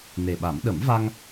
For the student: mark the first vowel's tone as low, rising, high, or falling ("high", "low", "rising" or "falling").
low